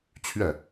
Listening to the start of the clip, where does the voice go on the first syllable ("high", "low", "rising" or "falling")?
falling